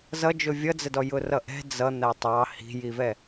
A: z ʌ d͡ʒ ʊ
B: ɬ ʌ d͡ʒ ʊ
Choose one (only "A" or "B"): A